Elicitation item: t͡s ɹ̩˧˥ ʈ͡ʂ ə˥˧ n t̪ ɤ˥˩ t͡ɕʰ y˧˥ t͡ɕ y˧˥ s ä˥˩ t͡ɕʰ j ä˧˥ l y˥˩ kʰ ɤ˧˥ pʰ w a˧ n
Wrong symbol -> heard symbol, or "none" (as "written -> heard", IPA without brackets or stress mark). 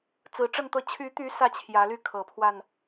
t͡ɕ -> t̪